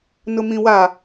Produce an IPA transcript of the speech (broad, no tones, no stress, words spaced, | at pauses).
nʊmĩwa